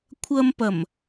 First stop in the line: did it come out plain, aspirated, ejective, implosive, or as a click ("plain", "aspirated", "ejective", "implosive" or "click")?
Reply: aspirated